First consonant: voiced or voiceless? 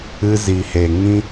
voiced